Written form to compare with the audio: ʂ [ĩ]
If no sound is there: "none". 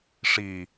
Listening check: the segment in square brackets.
i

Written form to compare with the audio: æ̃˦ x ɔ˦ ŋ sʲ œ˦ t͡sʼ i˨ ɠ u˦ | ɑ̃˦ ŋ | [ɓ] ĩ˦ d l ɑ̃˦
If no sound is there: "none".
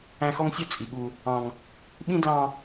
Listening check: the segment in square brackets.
ɓ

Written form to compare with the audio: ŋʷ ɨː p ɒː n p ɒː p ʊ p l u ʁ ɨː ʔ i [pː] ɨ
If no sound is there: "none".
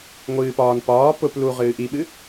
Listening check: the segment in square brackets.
ɓ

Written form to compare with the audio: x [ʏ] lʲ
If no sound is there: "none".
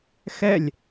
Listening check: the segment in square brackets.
ɛ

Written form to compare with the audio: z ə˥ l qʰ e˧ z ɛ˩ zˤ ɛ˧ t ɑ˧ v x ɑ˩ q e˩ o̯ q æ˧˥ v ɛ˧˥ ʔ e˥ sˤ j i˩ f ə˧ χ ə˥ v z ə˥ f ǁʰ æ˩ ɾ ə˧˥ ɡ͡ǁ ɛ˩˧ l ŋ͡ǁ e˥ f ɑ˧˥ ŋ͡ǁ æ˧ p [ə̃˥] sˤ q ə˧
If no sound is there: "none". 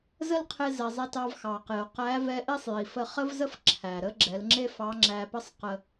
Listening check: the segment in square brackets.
ə˥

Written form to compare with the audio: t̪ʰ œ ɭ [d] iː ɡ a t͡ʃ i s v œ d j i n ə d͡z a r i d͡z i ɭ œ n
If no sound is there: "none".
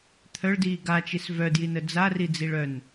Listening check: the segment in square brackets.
d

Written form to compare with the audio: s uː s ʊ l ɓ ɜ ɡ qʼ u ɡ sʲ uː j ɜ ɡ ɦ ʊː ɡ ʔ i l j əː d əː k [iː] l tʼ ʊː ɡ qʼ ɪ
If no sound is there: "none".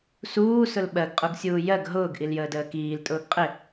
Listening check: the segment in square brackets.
iː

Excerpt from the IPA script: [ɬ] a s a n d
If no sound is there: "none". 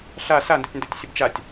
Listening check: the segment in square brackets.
ɬ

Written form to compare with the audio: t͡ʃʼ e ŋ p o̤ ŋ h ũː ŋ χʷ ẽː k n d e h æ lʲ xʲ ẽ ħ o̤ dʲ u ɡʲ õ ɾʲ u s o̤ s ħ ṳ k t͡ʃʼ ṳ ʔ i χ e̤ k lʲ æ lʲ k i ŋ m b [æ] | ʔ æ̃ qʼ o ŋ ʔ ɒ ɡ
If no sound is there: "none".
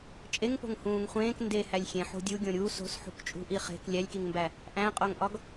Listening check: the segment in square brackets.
æ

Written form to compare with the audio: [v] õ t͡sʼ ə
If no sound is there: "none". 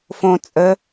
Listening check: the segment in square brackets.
f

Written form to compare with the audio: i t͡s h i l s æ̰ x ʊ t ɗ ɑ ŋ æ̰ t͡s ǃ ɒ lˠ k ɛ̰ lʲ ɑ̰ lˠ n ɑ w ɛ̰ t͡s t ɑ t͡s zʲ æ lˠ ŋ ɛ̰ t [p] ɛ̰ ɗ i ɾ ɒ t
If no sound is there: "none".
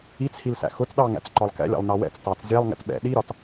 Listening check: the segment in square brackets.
ɓ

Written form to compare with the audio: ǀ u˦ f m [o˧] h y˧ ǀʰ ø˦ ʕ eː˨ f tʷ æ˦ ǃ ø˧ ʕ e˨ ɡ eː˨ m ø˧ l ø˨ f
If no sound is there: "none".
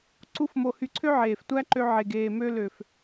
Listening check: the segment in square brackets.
o˧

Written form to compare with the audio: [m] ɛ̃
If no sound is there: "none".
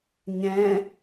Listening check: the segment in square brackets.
ɲ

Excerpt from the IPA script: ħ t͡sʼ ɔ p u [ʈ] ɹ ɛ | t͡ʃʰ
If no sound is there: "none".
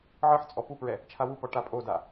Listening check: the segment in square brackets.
p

